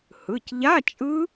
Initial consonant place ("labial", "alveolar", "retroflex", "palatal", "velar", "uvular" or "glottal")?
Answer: glottal